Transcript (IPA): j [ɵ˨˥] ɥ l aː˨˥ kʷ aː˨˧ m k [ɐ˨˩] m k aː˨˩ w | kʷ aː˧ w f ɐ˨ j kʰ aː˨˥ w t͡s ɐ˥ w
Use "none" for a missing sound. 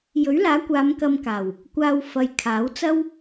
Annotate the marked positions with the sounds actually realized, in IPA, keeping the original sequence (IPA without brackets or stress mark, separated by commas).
ɵ˨˥, ɐ˧